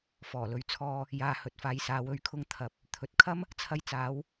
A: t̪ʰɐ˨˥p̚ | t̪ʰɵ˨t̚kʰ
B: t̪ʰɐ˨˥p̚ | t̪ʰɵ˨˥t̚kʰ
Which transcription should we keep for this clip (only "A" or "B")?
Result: B